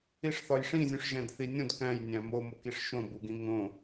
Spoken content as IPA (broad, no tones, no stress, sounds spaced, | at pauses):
i ʂ θ ɒ j ʂ ĩ zʲ ũ ʂ ʒ æ̃ d θ i nʲ õ d k æ̃ j nʲ æ̃ m o m o k i ʂ ʃ õ b u ɡ ĩ ŋ õ